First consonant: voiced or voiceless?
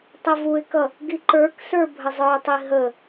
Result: voiceless